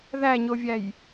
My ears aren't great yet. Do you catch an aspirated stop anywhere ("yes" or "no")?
no